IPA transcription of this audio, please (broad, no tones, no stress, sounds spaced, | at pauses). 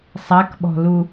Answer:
sˤ a k ɓ ɔ̤ l u